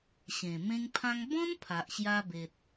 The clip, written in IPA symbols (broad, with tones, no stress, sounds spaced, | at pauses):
ɕ ẽ˨˩ m ẽ˦ ŋ pʰ ã˦ ŋ b ɔ̃˦ n pʰ a˨ ʔ ɕ j a˧ b e˨ t̚